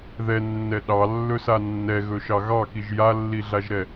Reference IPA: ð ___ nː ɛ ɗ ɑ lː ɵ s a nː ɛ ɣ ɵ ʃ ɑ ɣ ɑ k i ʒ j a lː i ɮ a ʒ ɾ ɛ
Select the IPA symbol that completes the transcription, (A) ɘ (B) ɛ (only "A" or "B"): B